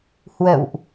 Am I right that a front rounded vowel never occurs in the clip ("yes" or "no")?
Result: yes